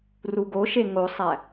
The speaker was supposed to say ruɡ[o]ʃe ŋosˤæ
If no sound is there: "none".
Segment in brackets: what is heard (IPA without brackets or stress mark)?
o